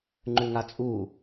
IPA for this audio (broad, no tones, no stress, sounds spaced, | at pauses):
ŋ͡ǃ ʉ ŋ a t͡sʼ u